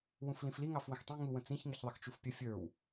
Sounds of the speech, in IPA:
wũflĩfli ŋɑfwə̃xtˤĩ ŋu wə̃t͡sĩç ŋɪçðˤɪxt͡ʃufpʲə fʲə˞w

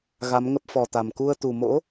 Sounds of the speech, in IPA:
ɣa˨˦mŋə˦˥p̚fɔ˨˩t̪a˨˩m ku˧ə̯ t̪u˨˩ mo̰˧˥

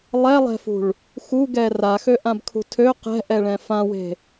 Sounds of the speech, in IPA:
lˠɛlˠɛ̤fṳɭ | xuɡɛ raxøʔãbkʰṳ tʰø qɛ̤ʔɛɭɛ̃ fãwe̤

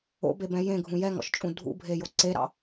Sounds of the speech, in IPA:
o̰bebɛ̃ jẽɡʱũ jɛŋɔ̰ʃt͡ʃʼũ dʱṵbʱejo ǀeɾɑ̰

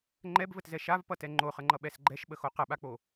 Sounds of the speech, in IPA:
ŋ͡ǃɛbvətzɛ ʃavpʌtɛ ŋ͡ǃoχəŋ͡ǃʌɓɛs ɡ͡ǃɛʃɓəxo qəɓak͡po

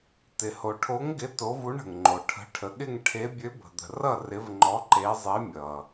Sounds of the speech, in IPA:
tɪ˨ho˨ʈʰo˧˥ŋɡɪ˧˥ to˧˥vu˧˥ɳ ə̤˨ŋŋ͡ǃo˨ʈʰə̤˧˥ ʈʰə˨ɠɪ˥˧ŋʈʰe˧˥ bʲø˧˥bə̤˨d̪ə̤˨rʌ˥˧ rɪ˧˥vŋ͡ǃɔ˧˥ ǃe˧˥zˤe˧˥ mʲʌ˨

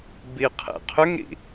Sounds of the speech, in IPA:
biqʰḛqʰʏŋɾḭ

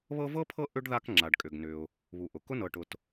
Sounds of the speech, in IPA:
βɤ˦vɤ˥pʰɤ˦ ʔʏ˥ɖða˦k ŋ͡ǁa˩ɖkʼʏ˩ɡnʏ˩ʊ̯ | βu˩ ʔʊ˩kʊ˥ nɤ˨ʈʊ˨t

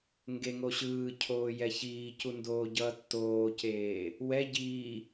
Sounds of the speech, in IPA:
ŋɡeŋo ɕɯːcʰoː jɛçiːcu ndoːɟʌːtːoːceː | wɛ ɟiː

